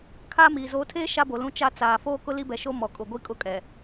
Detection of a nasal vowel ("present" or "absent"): present